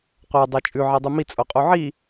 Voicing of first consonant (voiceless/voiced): voiceless